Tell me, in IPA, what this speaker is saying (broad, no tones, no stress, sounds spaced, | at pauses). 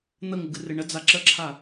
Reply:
n̪ ə ŋ ɨ ɡ ɨ r ɨ ɳ ə d͡z a ǁ ə ǁʰ a